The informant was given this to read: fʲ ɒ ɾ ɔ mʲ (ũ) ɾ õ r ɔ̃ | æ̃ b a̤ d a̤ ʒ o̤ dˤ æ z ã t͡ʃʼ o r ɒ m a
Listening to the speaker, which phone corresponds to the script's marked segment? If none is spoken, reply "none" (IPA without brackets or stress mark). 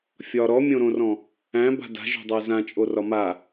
õ